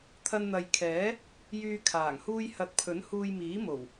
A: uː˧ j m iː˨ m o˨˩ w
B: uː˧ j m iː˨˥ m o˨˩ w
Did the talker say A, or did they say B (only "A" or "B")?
B